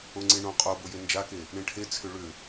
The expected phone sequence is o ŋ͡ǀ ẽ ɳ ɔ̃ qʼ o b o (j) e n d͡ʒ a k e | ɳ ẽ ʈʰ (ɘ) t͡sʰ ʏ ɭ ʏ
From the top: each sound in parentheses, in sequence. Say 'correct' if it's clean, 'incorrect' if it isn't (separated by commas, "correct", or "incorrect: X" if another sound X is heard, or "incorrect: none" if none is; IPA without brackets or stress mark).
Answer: correct, incorrect: e